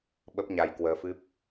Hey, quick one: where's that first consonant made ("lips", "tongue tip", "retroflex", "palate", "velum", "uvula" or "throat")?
lips